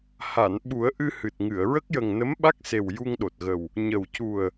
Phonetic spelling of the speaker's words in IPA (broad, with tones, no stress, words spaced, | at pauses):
ha˨˩˨n ɓu˨˩˦ə̯ʔɨ˧ hɨ˨˩t̚ŋɨ˨˩˨ə̯ ɹə˦˥k̚jə˨˩ŋ nə˧˥mɓa˦˥k̚se˨˩w ju˧ŋɗo˨˩t̚ɣə˨˩w | ɲə˨˩wcu˨˩ə̯